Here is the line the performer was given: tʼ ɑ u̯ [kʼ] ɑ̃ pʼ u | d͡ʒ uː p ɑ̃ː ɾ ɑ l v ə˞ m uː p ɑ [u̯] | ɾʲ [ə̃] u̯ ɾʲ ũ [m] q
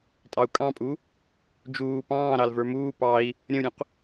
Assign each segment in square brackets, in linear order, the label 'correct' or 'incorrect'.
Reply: correct, incorrect, correct, incorrect

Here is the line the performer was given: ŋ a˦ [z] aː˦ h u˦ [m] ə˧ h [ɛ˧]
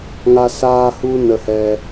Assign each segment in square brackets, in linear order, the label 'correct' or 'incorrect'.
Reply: incorrect, incorrect, correct

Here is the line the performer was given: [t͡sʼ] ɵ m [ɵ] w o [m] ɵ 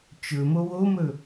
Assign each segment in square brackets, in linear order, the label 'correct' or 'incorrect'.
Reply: incorrect, incorrect, correct

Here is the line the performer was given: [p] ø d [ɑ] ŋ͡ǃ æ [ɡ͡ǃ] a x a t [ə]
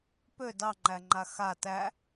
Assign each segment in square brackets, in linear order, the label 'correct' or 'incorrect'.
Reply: correct, correct, incorrect, incorrect

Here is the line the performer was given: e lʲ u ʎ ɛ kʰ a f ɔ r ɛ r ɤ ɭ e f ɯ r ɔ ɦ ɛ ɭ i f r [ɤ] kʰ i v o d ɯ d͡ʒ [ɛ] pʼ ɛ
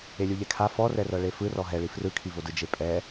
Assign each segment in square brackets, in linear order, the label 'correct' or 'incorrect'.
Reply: incorrect, incorrect

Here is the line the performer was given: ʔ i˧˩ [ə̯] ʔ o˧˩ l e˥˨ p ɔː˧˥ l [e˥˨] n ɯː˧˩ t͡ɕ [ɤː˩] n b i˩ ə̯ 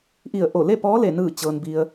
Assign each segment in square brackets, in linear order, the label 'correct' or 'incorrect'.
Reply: correct, incorrect, correct

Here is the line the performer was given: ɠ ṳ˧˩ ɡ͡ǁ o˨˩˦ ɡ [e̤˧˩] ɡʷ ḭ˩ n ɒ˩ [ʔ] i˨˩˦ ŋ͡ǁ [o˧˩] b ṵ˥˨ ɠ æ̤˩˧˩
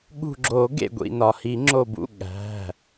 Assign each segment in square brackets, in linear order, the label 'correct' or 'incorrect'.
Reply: incorrect, incorrect, correct

